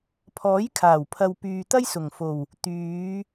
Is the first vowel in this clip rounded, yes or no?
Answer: yes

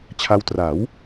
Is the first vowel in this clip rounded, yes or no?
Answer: no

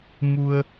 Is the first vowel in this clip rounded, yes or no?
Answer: yes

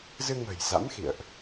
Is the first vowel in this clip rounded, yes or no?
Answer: no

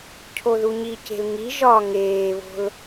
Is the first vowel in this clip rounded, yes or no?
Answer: yes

